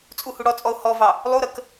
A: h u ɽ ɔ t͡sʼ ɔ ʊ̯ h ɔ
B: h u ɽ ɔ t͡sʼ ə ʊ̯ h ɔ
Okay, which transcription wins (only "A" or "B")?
A